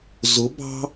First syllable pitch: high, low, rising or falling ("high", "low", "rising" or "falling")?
rising